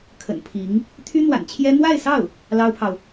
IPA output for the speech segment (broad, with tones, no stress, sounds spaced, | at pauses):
kʰ ə̰˨˩ n pʰ i˧˥ ŋ | t̪ʰ y˥ n̪ w a̰˨˩ n t͡ɕʰ j ɛ˥ n̪ w a˥˧ ɪ̯ s ɑ˥˩ ʊ̯ | l ɑ˥ ʊ̯ pʰ ɑ˨ ʊ̯